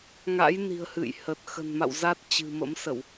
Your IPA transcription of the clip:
ŋ a̰˧˥ j n i̤˨˩ ə̯ h ɨ̰˧˨ j h ə˨˩ t̚ x ə̤˨˩ n m a̰˧˨ w z a˦˥ t̚ t͡ɕ ɨ̤˨˩ m ə̰˧˥ m s ə˧˩˨ w

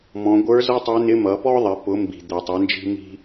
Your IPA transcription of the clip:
m ɔ̃˩˧ ɡʷ ə˞˧˥ z ʌ˥ tˤ ɛ˧˥ n ɪ˧˥ m ʌ˩˧ p ɔ˥ ðˤ ɪ˩˧ p ʊ˩˧ m b i̤˩ d̪ ɛ˩ tˤ ɪ˩˧ n d͡ʒ i̤˧ m i̤˧

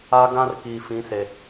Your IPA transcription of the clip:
a˦ ɡ ã˦ r k iː˨ f ĩ˨˦ s e˨

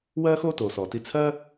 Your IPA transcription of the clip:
w ɜː˥ x oː˥ t oː˩ s ɔː˩ t i˧ t͡sʰ ɜː˥

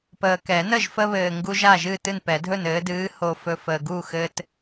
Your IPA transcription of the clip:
p əː˨ k ɛ˨˩˦ n ə˥˨ ʒ f ə˦ β ɘː˨ ŋ ɡ u˦ ʒ a˥˨ ʒ ɨ˥˨ t ɨ˥˨ n p ɛ˨˩˦ dʱ ɵ˥˨ n ɘː˨˦ d ɨː˨˦ h o˨ f ɵ˨ f əː˨ ɡ u˥˨ x ɘ˦ t

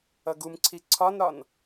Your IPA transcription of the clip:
ʌ ɡ u m ǀʰ i ǀʰ ɒ n ɾ ɒ n

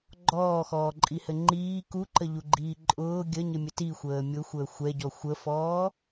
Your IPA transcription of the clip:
ɡ͡ǃ ɔː x ɔː ǃʼ i h ɘ ŋ͡ǃ iː k u ǃ ə ʎ u ɡ͡ǃ iː ǃʼ ʊː ɡʲ ə ɲ ɘ mʲ ə t i xʷ əː mʲ ʊ xʷ əː xʷ ɛ ɟ ɔ xʷ ə f ɔː

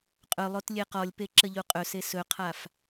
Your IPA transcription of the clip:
qʼ ɵ lˠ o t lʲ e q ɔ lʲ p e ǁ ə ʎ u qʼ ɵ s e s ɵ qʰ a f

